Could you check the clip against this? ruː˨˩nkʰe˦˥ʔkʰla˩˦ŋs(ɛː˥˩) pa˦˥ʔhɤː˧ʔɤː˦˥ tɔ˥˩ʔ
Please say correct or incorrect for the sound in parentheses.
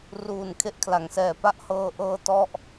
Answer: incorrect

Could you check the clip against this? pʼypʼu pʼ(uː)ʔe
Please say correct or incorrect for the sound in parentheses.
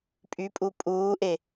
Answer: correct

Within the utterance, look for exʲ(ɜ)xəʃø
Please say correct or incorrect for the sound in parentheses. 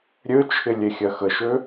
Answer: correct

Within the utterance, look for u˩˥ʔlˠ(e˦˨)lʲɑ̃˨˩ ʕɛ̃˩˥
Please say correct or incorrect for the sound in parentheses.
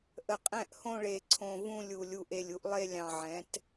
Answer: correct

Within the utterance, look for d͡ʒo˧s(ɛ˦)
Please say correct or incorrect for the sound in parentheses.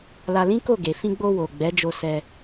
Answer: incorrect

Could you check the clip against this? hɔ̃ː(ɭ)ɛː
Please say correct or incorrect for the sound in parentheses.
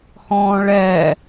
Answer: correct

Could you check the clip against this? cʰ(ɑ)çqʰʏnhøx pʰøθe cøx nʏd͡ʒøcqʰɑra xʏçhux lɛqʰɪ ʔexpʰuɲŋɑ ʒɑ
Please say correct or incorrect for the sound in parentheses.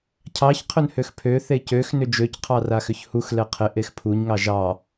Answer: correct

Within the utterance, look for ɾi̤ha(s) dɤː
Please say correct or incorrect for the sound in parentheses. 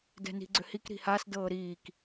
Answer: correct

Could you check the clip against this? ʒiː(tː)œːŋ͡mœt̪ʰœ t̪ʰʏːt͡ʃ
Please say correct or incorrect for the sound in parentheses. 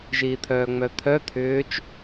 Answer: incorrect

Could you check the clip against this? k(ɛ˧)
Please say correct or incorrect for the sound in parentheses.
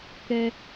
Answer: correct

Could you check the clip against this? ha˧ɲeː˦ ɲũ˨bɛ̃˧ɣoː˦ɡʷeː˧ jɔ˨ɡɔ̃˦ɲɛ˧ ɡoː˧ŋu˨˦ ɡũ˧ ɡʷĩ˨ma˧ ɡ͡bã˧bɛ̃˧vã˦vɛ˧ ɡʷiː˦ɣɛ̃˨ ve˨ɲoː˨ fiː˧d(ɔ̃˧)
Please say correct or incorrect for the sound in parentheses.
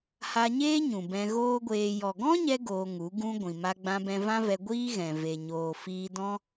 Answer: incorrect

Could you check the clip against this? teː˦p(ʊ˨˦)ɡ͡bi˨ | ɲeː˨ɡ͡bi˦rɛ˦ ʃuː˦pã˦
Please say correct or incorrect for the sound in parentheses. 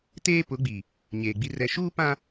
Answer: correct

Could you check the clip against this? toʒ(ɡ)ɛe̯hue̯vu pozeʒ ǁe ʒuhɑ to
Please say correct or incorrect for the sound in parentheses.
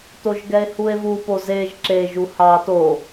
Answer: correct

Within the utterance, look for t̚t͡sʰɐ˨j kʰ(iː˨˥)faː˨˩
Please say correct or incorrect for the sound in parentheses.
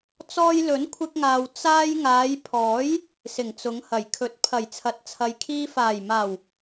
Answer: incorrect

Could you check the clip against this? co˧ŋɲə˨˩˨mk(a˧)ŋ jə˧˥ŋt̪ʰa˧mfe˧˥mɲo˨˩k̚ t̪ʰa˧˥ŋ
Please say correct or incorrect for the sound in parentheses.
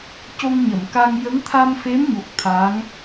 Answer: correct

